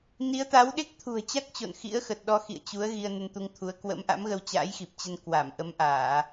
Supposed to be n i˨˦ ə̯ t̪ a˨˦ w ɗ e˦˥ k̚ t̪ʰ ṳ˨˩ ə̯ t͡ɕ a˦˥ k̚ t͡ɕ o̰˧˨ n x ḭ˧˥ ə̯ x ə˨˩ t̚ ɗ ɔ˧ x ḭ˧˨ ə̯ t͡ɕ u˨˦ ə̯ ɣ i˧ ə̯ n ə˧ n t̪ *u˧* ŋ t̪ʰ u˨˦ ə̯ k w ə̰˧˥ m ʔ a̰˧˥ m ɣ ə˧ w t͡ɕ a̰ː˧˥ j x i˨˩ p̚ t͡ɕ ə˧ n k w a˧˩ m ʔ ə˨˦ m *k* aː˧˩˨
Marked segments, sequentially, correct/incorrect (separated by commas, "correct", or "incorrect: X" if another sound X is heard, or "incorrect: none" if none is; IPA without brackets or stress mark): correct, incorrect: ʔ